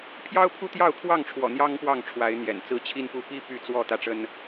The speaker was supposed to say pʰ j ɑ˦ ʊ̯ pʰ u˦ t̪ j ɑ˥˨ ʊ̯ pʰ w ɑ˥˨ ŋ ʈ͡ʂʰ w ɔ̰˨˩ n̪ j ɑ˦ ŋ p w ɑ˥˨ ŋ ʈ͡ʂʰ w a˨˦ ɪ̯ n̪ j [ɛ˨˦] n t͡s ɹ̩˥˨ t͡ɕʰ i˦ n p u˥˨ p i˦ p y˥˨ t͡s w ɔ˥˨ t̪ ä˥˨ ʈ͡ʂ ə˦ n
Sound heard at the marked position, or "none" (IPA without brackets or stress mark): ɛ̰˨˩